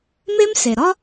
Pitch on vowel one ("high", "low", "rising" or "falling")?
high